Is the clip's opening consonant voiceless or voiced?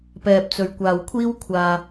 voiceless